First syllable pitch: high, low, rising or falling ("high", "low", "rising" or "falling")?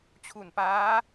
low